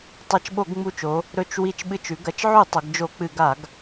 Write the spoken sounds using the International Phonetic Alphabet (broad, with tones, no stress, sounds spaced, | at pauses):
tˤ ɐ˧˩ t͡ʃ ɓ o˧˩˧ ɡ ŋ͡m u˧˩ t͡ʃ o˩˧ | ɾ ɵ˧˩ t͡ʃ w i˧˩ t͡ʃ ɓ ɨ˧˩ t͡ʃ ʉ˩˧ ɡ ɐ˩˧ t͡ʃ ʕ ʉ˧˩˧ tˤ ɵ˩˧ ɡ d͡ʒ o˧˩˧ k͡p ɨ˧˩˧ ɡ a˧˩˧ ɡ